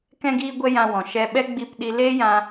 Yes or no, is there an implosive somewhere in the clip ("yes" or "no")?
yes